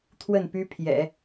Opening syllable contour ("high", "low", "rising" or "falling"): falling